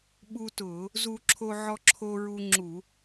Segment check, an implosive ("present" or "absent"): present